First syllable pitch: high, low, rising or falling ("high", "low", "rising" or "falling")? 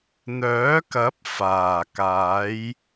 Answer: rising